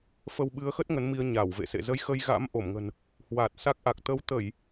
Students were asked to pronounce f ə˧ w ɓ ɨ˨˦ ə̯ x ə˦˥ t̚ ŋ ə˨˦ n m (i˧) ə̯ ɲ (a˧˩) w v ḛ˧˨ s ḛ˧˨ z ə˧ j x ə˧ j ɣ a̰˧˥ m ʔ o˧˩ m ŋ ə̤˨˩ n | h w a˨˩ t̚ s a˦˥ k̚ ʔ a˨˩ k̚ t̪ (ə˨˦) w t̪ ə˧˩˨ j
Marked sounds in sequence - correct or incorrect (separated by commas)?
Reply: correct, correct, correct